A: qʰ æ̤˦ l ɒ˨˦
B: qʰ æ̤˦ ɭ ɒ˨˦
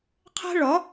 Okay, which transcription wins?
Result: B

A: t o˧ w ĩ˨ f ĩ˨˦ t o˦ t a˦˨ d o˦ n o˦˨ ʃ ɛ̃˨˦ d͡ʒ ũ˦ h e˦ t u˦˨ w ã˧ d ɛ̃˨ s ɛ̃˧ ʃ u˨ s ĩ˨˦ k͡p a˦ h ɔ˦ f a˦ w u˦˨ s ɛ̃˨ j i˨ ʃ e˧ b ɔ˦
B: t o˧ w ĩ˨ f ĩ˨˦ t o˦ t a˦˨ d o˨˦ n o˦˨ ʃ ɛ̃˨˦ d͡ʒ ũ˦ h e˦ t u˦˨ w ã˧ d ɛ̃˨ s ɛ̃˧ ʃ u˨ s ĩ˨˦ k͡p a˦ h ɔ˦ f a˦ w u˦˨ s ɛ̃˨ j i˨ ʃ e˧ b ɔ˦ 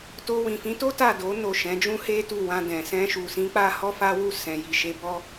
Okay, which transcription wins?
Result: B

